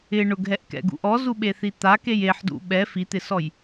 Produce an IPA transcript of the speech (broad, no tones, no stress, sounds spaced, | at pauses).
ɪ ɳ ʊ ɡ ɦ ɛ ʔ k ɛ̰ ɡ ṵ ʔ ɔ z u ɓ e θ i t̪ a k e j e ħ d ṵ ɓ ɛ f i t̪ ɪ s ɔ j